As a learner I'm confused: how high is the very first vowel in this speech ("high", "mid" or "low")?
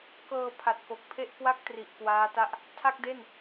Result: mid